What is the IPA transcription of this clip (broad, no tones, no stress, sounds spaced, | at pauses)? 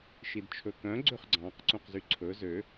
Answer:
ʃ i d t͡ʃʰ ɵ k œ̃ ɡ͡ǀ ø χ ɡ͡ǀ ɑ̃ q ǀ ũ q z y ǀʰ ɵ z ø